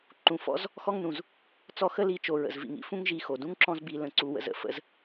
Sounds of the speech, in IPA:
ǃ ũ˨ f ɔ̰˦ z | x ɔ˦ ŋ n ũ˨ z | t͡s ɔ˦˨ x ə˦ l i˨˦ t͡ʃ o˨ ɹ ə̰˨ z v ḭ˨ ŋ ḭ˦ f ũ˦ ŋ ʒ i˧ x o˨ d ũ˦ ŋ ǁ ɔ̃˧ z b i˨ l ə̃˨ ǀ u˨ w ə̰˨ z ə̰˨ f ə̰˧ z

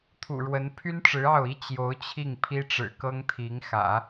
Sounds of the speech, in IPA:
t̪ʰ ṵ˨˩ ɻ w ə˧˥ n pʰ y˥ n ʈ͡ʂ ɻ̩˧˥ ɑ˥˩ ʊ̯ i˥ t͡ɕ j o˧˥ ʊ̯ t͡ɕʰ i˥˩ ŋ pʰ i˥ ʈ͡ʂ ɻ̩˨˩ k ɤ˥ ŋ t̪ʰ i˧˥ ŋ x ä̰˨˩˦

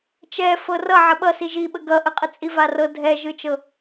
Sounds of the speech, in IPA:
t͡ʃ ɛ f ɤ r ʌ ʕ ə ɓ ʌ s i ʒ i ɓ ə ɡ ʌ ʔ ə qʼ ə t͡sʼ i v a r ɤ dʱ ɛ ʒ ɯ t͡ʃ ɤ

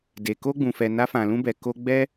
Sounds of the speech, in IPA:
d e˨ k o˧ ɡ͡b ũ˨ f ɛ˨ n a˧ f ã˨ l ũ˧ b ɛ˨ k o˧ ɡ͡b ɛ˧

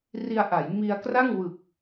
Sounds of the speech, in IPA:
r i˧ a̯ ʔ a˩˦ j m i˧ a̯ k r a˥˩ ŋ w ɯ˨˩ k̚

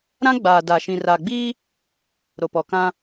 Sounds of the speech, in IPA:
ɾ ã˦ ɡ͡b aː˨ d a˨ ʃ ĩ˨ r a˨ ɡ͡b iː˦ | ɾ o˨ p ɔ˨ k ã˦

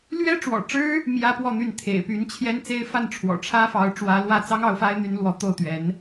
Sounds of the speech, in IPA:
l ɥ ɛ˥ ʈ͡ʂ w ɔ̰˨˩ ʈ͡ʂ ɻ̩˥ | m j ä˥ p w ɔ˥˧ n̪ y˥˩ n t̪ʰ ḛ˨˩ ɪ̯ p y˧˥ n t͡ɕʰ j ɛ˥ n t͡s e˥ ɪ̯ f a˥˩ n ʈ͡ʂʰ w ɔ̰˨˩ ʈ͡ʂʰ ä˥ f ɑ˧˥ ʊ̯ ʈ͡ʂ w ä˧˥ l w ä˥˩ t͡s ɑ˥ ŋ ɑ˧˥ ʊ̯ f a˥ ɪ̯ n̪ y˧˥ n l w ɔ˧˥ t̪ o˥˩ ʊ̯ t̪ ɥ ɛ˧˥ n

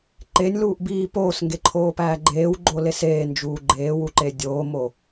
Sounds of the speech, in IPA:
ǃ e nʲ l uː ʔ b iː p oː s ŋ ɡ e ǃʰ oː p æː ɡ͡ǃ eː w ɡ͡ǃ o l e s eː n d͡ʒ uː ɡ͡ǃ eː w u ǃ e dʲ oː m o

